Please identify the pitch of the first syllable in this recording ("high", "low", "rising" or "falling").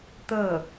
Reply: falling